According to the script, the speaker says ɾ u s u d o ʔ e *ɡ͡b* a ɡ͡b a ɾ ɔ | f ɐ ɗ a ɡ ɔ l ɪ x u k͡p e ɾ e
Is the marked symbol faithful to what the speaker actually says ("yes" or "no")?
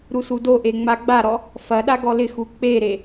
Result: no